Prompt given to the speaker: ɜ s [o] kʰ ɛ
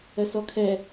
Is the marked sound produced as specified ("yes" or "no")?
no